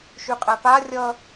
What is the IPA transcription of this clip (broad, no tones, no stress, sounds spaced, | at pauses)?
ʃ y qʼ ɛ p a rʲ ʌ